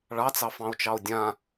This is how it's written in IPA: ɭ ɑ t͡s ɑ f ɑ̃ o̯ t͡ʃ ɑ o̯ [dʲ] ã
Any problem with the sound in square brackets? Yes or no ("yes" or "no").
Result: no